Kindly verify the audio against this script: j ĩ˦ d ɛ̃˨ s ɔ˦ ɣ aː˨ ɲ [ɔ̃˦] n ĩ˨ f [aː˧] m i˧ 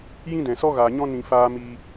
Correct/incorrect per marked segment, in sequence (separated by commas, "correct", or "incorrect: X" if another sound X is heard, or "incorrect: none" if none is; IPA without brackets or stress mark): correct, correct